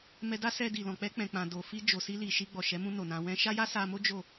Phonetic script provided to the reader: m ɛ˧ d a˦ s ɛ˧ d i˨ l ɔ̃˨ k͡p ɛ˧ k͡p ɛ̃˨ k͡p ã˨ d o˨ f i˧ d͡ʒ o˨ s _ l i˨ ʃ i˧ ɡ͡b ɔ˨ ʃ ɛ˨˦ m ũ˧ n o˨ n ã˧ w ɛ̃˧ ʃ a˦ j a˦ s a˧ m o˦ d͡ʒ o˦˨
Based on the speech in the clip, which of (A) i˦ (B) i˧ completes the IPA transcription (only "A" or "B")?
B